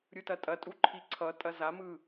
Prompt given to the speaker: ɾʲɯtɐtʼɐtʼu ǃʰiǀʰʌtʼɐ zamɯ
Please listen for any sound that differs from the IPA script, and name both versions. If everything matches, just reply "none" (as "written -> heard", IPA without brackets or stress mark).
none